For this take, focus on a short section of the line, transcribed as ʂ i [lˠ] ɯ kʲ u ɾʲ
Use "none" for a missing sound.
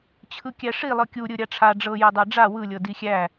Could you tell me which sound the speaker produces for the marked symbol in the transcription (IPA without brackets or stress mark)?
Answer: lˠ